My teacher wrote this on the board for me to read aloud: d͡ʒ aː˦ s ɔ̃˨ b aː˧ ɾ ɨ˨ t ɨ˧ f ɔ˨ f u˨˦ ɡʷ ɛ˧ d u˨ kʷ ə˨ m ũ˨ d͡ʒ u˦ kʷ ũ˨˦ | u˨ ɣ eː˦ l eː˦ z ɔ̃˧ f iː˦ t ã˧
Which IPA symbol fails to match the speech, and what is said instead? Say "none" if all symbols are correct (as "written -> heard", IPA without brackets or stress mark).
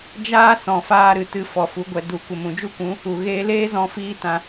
b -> f